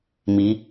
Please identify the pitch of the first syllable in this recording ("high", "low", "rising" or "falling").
rising